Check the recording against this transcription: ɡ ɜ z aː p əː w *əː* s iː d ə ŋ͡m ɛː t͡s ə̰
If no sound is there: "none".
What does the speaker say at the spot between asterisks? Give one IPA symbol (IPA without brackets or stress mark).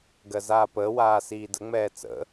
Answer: aː